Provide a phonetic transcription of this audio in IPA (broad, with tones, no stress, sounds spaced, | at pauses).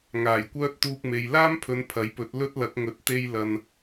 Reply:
ŋ aː˨˩ j kʷ œː˥ t̚ t̪ uː˧ k̚ m e˨ j l aː˥ m pʰ ɵ˨˧ n pʰ ɐ˨˥ j p ɵ˨˥ t̚ l ɵ˥ t̚ l ɐ˨˥ k̚ ŋ ɵ˨˥ t̚ t̪ e˧ j l ɐ˨ n